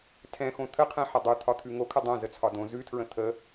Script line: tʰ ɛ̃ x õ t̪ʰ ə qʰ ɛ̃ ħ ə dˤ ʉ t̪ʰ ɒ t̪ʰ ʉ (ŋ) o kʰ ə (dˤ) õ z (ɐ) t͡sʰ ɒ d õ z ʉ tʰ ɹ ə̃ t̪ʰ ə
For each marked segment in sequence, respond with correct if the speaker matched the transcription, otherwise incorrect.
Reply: correct, correct, incorrect

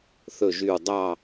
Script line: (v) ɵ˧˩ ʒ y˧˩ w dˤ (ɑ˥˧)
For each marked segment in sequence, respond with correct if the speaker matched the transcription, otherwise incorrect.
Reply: incorrect, correct

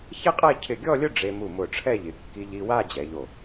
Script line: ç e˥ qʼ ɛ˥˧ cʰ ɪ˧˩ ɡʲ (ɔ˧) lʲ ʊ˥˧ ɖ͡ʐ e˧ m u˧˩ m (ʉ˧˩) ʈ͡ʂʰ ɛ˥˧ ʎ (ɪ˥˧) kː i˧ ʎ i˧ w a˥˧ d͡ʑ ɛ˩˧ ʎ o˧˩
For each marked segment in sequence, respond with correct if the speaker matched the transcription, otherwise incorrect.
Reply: incorrect, incorrect, incorrect

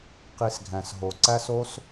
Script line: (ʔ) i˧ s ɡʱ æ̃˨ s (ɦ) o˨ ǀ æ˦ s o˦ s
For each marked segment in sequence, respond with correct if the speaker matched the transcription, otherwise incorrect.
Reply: incorrect, correct

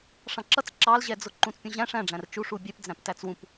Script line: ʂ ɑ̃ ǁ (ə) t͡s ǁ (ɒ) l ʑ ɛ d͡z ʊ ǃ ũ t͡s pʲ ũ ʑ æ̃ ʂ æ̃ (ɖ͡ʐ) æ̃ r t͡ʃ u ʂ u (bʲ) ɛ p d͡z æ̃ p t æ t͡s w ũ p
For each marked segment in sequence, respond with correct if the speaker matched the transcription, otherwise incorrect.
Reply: incorrect, incorrect, correct, correct

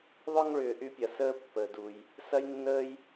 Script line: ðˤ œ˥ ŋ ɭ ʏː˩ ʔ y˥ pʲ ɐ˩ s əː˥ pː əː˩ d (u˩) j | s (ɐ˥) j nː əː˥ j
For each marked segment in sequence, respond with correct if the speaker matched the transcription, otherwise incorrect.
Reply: correct, correct

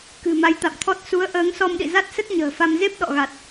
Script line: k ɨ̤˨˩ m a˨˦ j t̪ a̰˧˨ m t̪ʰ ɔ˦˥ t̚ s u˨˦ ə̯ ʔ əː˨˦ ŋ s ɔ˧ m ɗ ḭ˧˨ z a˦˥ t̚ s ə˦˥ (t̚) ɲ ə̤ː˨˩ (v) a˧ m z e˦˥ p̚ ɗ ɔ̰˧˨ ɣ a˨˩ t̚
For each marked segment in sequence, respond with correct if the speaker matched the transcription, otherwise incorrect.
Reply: correct, incorrect

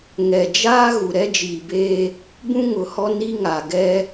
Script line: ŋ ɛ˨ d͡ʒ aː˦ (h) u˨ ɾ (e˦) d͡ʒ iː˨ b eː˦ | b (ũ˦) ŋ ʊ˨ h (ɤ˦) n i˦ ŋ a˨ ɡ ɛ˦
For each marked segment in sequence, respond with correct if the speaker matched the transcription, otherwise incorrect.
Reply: incorrect, incorrect, correct, incorrect

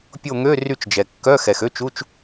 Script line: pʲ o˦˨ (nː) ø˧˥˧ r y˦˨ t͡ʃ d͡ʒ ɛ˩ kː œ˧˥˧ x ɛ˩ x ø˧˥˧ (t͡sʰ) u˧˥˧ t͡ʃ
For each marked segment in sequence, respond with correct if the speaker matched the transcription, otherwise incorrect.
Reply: incorrect, incorrect

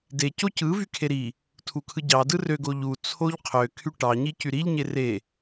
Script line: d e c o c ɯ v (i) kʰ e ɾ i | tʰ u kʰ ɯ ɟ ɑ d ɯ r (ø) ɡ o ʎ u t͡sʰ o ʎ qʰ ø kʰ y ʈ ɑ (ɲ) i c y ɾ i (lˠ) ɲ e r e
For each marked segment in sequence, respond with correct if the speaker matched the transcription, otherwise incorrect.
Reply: incorrect, correct, correct, incorrect

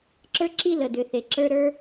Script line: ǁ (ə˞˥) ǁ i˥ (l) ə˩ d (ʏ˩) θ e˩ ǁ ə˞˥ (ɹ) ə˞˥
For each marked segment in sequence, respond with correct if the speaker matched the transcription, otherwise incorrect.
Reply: correct, correct, correct, incorrect

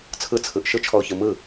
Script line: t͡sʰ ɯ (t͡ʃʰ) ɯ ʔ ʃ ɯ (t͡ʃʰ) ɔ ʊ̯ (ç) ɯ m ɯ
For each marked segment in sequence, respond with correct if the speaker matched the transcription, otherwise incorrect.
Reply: incorrect, correct, correct

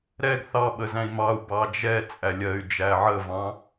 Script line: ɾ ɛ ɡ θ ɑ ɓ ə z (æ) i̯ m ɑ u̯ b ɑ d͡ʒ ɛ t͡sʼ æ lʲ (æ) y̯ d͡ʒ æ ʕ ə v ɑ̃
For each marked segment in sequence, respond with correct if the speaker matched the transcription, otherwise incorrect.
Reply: incorrect, incorrect

